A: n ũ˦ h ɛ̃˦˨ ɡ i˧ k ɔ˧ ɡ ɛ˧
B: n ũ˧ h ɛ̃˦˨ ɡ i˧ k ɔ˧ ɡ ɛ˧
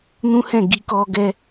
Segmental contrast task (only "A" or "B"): A